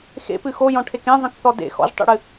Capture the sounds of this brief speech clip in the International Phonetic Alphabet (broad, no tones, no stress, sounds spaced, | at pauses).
x ḛ p ɨ x o j ɔ̃ ʈʰ e k ẽ zˤ ə̃ k θ ɔ d ḛ x ɔ̰ ʒ tˤ ḛ ɽ ɨ